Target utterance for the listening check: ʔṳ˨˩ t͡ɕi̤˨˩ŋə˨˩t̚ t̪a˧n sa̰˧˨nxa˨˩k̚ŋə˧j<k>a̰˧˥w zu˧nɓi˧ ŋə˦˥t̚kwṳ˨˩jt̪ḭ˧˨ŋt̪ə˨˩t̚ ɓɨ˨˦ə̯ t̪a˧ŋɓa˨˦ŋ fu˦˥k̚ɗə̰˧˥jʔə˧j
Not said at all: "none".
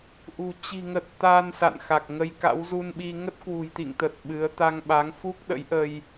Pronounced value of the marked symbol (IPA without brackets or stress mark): k